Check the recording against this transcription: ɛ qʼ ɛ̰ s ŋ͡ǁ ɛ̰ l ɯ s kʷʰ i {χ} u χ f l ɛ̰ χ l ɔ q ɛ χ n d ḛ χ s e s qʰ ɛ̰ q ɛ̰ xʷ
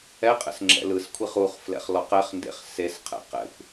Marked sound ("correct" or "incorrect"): correct